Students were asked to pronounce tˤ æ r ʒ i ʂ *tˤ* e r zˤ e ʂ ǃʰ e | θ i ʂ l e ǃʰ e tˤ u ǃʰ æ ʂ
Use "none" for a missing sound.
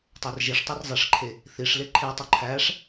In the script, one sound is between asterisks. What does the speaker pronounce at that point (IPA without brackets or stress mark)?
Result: tˤ